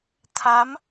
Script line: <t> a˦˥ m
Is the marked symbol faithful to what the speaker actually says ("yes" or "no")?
no